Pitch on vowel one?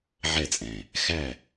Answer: falling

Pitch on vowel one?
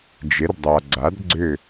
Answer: rising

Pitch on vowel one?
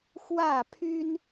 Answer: falling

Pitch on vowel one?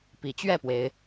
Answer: rising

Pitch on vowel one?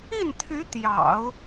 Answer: falling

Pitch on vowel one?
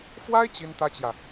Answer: high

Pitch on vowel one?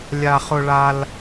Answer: high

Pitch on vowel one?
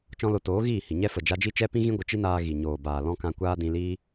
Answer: high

